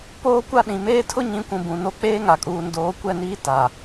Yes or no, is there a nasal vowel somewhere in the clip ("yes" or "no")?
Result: yes